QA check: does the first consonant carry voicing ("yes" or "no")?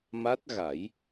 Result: yes